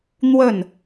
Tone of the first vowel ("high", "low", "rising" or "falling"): falling